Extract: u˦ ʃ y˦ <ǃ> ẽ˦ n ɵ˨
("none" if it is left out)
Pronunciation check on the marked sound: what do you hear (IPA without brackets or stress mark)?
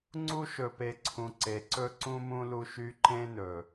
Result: ǃ